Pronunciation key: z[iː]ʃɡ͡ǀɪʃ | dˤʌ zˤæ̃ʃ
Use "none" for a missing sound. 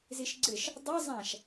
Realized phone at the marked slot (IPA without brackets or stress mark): i